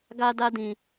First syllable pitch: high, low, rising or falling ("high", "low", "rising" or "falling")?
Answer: high